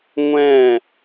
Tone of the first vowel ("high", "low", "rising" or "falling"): falling